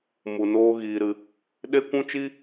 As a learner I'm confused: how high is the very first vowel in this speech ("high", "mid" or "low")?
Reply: high